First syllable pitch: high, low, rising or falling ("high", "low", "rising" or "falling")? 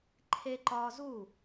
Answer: high